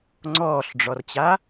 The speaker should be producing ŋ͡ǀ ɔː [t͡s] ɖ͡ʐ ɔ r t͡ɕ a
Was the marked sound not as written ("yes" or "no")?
yes